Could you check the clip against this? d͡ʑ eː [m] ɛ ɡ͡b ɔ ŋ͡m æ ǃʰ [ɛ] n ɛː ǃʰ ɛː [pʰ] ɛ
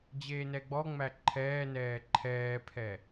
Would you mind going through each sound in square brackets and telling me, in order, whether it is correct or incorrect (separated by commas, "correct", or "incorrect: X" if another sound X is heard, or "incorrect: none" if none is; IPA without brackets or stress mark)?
incorrect: n, incorrect: ɛː, correct